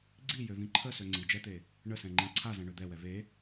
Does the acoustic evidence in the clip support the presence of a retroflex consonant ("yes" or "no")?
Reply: yes